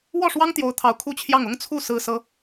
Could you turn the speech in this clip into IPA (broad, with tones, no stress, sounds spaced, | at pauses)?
w ɔ˥˩ ʂ w ɑ˥ ŋ t̪ j o˧˥ ʊ̯ t̪ʰ ɑ˧˥ ʊ̯ kʰ u˥˧ t͡ɕʰ j ɑ˥˩ ŋ ʊ˥ ŋ t͡sʰ u˥˩ s ɹ̩˥ s ɤ˥